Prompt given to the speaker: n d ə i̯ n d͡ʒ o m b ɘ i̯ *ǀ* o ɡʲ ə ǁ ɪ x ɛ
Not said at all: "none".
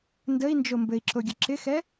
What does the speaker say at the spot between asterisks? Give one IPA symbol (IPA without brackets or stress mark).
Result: ǁ